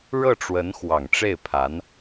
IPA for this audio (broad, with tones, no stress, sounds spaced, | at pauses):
ɻ ɤ˥˩ ʈ͡ʂ w ə˧˥ n x w ɑ˨˩ ŋ ʈ͡ʂ e˥˩ ɪ̯ pʰ a˧˥ n